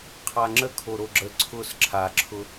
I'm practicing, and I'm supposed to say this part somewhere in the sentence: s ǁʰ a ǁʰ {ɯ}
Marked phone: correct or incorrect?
incorrect